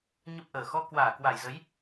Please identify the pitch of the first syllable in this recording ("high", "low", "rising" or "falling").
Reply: low